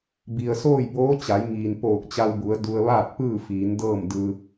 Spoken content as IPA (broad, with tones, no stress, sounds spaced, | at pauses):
b i˩ ə̯ s oː˥˨ j b oː˧˥ t͡ɕ a˩˧ j ŋ iː˩ n p oː˧˩ k̚ t͡ɕ a˧ w b u˩˧ ə̯ d u˧ ə̯ ʋ aː˥˨ t̚ p ɯː˥˨ f iː˩˧ n d ɤː˥˨ m d ɯː˧